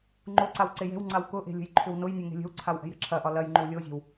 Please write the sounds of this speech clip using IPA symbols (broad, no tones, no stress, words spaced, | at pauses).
ŋ͡ǃoǀaw ǀejɛ̤wŋ͡ǀaw kʊʔe̤ lʲə̤jǃʰʏwnʊjnʲe ŋe̤lʲə̤wǀʰaw ʔɛ̤jɾə̤ǁʰɐʔɒ lɐjŋ͡ǃʏw lʲozʲɛ̤w